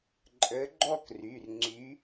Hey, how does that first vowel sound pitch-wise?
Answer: rising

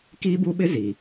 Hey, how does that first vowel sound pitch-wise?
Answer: high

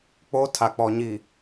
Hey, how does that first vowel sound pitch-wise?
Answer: high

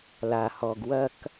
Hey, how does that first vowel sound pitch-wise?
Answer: low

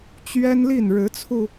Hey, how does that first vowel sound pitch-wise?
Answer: high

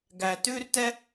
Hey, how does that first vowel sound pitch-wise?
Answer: low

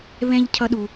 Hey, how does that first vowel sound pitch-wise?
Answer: high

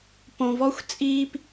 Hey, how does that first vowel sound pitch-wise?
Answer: low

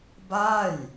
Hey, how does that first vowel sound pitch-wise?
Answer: falling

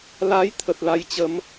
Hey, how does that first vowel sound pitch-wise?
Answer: rising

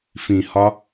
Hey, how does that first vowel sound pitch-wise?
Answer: low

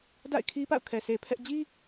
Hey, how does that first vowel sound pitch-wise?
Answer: falling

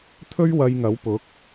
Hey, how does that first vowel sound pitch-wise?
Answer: high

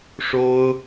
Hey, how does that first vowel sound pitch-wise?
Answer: high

